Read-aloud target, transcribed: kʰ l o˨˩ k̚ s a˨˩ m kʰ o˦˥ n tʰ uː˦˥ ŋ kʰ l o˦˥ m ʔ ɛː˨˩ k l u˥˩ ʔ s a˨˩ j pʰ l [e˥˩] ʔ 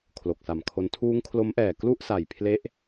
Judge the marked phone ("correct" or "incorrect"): incorrect